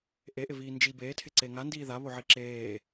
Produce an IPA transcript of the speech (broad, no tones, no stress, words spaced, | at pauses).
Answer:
ʔeʔɪviː nd͡ʒi beːtʰɪǀeː ŋandiː ðaβoʕi ǁeː